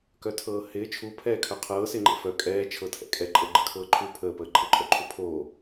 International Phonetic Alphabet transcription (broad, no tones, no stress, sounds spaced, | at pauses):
k œ tʰ ɤː h ɪː t͡ʃʰ u pʰ ɛː kʰ œ qʰ ɤː s ɪː ŋ͡ǃ ɛ̰ f œ kʼ ɛː t͡ʃʰ ɤ tʰ ɛ̰ kʼ ɛ ǃʼ ɤ ɡ͡ǃ ə kʰ ɤː ǃʰ u pʰ əː p əː ǃʰ ə ǃʼ œ ǃʰ u pʰ oː